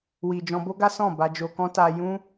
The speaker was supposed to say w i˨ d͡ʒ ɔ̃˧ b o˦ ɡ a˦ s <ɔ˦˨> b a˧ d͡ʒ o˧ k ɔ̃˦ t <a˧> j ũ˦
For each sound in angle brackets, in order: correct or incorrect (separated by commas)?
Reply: incorrect, correct